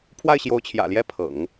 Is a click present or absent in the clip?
absent